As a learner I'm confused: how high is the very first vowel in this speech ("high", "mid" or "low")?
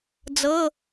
mid